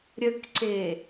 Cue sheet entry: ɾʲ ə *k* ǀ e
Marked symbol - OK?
yes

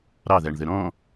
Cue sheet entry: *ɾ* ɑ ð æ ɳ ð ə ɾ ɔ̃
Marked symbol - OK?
yes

